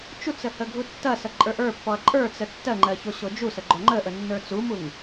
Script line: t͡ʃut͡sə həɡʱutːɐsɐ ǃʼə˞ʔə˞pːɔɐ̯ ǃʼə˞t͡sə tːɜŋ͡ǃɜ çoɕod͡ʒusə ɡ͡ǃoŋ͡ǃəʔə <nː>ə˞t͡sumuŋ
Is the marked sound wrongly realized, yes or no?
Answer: no